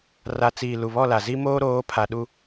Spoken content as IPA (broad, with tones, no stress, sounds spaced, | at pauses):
r a˨ t͡s iː˨ l u˨ β ɔ˦˨ l a˨ z i˦ m oː˦ ɾ oː˨˦ pʰ a˨ ɗ u˦